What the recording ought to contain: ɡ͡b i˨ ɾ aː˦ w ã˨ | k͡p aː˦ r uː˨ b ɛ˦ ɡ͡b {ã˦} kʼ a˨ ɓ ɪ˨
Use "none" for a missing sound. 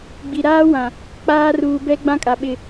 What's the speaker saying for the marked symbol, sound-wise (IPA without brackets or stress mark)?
ã˦